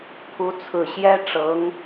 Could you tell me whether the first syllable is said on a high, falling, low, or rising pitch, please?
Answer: rising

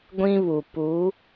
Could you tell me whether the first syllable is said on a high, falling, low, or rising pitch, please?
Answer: high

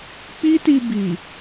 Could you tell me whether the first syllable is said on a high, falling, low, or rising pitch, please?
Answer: high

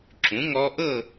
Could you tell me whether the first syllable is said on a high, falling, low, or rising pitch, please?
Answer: rising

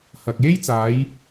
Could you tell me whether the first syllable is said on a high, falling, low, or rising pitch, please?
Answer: low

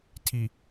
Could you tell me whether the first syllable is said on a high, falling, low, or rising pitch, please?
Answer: low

